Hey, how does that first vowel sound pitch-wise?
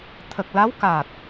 low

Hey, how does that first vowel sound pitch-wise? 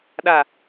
low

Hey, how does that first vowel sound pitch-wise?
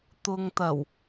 low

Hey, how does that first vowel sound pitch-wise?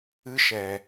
high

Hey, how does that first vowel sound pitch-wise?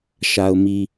low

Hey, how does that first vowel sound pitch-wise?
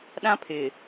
high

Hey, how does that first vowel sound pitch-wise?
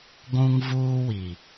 high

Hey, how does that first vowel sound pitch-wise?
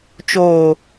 low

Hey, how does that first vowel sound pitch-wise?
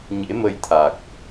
rising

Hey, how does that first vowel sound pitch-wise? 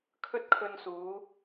high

